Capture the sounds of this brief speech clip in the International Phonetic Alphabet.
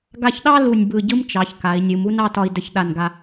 ɡ a˧ ç ɗ ɑ˥ l u˧˩ nʲ b ɯ˧˩ ɟ ɯ˥ m t͡ʃ ɑ˩˧ ç k a˩˧ i̯ nʲ ɯ˩˧ m u˥ n ɑ˥˧ t ɒ˧ i̯ d ə˧ ç ɗ a˧˩ n ɡ a˧

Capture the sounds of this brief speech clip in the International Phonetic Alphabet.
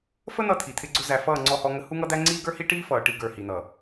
f ə˦ n̪ ʌ˦ t̪ʰ i˨ t̪ʰ ɪ˦ ɡ͡ǀ ʊ˦ z æ˨ f ʌː˦˨ ŋ͡ǀ ɔ˦ h ɔ˦ ŋ ə˦ h u˦ ŋ ʌ˦ d̪ æ˦ ŋ͡ǀ iː˦ ɡ ə˞˦ h i˦ ʈ iː˦ f ʌː˨ ʈ i˦ ɡ ə˞˨ h i˨ n̪ ʌ˨

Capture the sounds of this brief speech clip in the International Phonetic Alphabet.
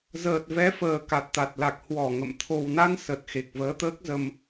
z əː˨˩ t̚ v ɛ˨˦ f əː˨˩ k a˨˩ t̚ t̪ a˨˩ t̚ l a˨˩ k̚ h w ɔ˧˩ ŋ ə̰˧˨ m t̪ʰ o˨˩ w n a˧ n s ə˨˩ t̚ x e˨˩ k̚ v əː˨˦ t̪ əː˦˥ k̚ z ə˧ m

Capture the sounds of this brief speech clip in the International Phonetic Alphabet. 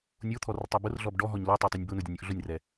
nʲ o t̪ʰ ɔ r tˤ ɛ b ʊ r ɮ ɔ b ɖ ɔ ɦ ɔ ɲ l o tˤ o tˤ u nʲ b ʊ n o dʲ ʊ nʲ o ʔ ɮ ʊ nʲ r ɛ

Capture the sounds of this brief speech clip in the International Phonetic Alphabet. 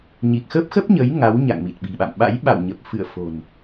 ɲ i˨˩ k̚ x ə˦˥ p̚ x ə˦˥ p̚ ɲ ə˨˦ j ŋ a˨˦ w ɲ a̰˧˨ ŋ m i˨˩ t̚ ɓ i̤˨˩ ɓ a̰˧˨ m ɓ a̰˧˥ j ɓ a̰˧˨ w ɲ ə˨˩ p̚ f ɨ̰˧˨ ə̯ f o̤˨˩ n

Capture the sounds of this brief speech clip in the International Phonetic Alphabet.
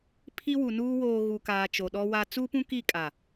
pʰ i˦ w u˨ n uː˦ w oː˨ ɣ u˨ k aː˨ t͡ʃ o˨ ɗ ɔ˦ w a˦ t͡s u˦ p ũ˦ k i˦˨ kʼ a˨

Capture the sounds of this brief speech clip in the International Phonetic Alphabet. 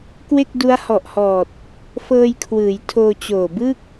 k w e˥˩ k̚ d u˦˥ a̯ h ɔ˨˩ ʔ h ɔː˨˩ t̚ | f ɤː˧ j kʰ w ɯː˩˦ j tʰ oː˧ t͡ɕ oː˨˩ b ɯ˥˩ k̚

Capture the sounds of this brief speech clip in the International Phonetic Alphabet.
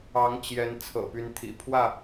ɑ˨˦ ŋ t͡ɕ j ɛ˨˦ n t͡sʰ ɤ̰˨˩ p y˨˦ n t̪ʰ ḭ˨˩ pʰ w ä˥˨

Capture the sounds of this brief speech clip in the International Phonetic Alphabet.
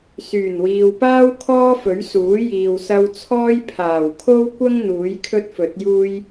s yː˨˩ n w iː˨ w p aː˥ w kʰ ɔː˥ f ɵ˨˥ ɥ s uː˨˥ j iː˨ w s ɐ˧ w t͡sʰ ɔː˥ j pʰ aː˨˩ w kʰ o˥ w kʷ ɐ˥ ŋ n̪ uː˨˥ j kʰ ɵ˥ t̚ f ɵ˨˥ t̚ j uː˥ j

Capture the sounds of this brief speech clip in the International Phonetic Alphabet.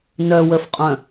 n œ w ə f qʼ œ̃

